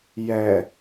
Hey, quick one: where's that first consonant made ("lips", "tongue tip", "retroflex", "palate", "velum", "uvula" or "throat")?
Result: palate